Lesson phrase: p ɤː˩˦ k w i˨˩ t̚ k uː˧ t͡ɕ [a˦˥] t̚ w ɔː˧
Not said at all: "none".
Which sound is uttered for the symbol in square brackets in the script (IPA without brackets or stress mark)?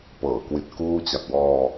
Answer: a˨˩